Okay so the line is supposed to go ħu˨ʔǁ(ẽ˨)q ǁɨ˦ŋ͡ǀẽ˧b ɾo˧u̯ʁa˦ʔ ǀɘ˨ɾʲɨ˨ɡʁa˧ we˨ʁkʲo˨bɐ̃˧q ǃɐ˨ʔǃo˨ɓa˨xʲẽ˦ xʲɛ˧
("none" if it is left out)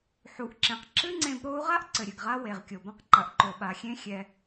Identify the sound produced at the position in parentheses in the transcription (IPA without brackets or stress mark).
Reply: ẽ˨